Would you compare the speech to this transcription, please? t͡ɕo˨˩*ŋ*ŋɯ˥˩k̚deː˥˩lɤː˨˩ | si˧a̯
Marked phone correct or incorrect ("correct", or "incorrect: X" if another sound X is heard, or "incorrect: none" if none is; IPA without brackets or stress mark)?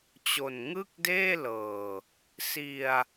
incorrect: n